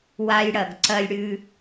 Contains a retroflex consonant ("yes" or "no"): yes